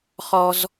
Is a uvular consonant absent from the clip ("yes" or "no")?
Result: no